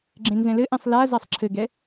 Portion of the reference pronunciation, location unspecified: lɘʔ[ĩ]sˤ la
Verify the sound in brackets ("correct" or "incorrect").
incorrect